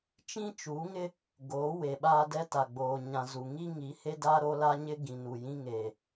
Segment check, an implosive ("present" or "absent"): present